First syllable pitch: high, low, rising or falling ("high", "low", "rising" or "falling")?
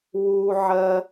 high